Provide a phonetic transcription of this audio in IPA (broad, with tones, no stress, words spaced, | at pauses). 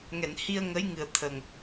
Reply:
ŋɛ˨˩˨nhi˧ə̯ŋə˧˥j ŋɨ˨˩ə̯ t̪ʰə˨˩ŋ